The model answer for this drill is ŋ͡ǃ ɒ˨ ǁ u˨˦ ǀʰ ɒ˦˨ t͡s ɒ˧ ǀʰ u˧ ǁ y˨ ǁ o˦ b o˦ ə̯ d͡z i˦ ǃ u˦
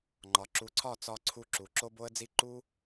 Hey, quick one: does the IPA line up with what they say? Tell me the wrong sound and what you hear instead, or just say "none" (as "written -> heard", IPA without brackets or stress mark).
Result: y˨ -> u˨